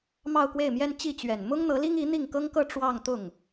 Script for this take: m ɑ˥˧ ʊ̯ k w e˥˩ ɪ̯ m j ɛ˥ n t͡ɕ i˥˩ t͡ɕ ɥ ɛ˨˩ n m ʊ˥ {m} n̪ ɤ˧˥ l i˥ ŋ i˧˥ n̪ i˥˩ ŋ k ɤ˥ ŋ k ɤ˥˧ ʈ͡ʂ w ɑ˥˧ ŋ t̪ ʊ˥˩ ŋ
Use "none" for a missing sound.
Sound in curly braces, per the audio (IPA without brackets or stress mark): ŋ